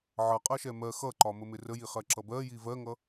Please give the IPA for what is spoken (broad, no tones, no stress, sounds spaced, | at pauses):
ʕ ʌ qʼ ɜ ʃ ɛ m ɜ x ʌ ǃ ɒ m ə m ɪ r ə j i χ ɜ ǁ ʌ b ɜ j i v ɜ ŋ ʌ